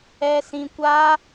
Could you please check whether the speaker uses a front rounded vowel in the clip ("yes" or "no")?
no